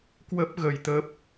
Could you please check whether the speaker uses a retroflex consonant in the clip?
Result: no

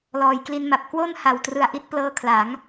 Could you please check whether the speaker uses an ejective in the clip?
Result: no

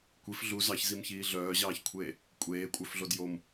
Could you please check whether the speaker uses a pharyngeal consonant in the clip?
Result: no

